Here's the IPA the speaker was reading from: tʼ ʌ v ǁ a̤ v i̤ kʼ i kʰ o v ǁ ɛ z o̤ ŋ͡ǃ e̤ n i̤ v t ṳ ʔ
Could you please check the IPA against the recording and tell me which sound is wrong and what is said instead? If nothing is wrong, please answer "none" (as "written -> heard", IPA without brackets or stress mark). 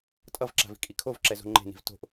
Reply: ṳ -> o̤